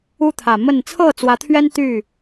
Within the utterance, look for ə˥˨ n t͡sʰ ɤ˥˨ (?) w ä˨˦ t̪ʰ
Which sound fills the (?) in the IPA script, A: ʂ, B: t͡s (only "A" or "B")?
B